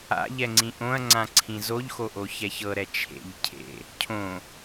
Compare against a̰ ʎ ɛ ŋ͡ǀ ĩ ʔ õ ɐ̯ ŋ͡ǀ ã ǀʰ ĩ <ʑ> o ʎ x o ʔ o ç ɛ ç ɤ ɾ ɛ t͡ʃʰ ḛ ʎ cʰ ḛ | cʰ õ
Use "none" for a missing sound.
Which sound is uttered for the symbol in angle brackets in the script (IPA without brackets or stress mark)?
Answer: z